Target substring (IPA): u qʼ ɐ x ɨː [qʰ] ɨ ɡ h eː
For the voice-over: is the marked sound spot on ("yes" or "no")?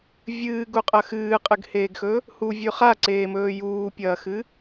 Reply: no